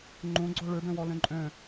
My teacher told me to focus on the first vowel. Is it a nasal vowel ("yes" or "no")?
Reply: yes